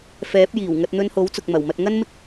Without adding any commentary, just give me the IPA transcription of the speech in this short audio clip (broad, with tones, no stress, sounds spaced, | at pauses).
f ɛː˨˥ p̚ j iː˨˩ w ŋ ɐ˧ t̚ n̪ ɵ˧ n h o˨˥ w t͡s ʊ˨ k̚ m ɐ˨˩ w m ɐ˧ t̚ ŋ ɐ˥ n m ɪ˥ k̚